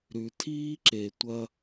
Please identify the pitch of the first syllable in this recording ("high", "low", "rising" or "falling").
low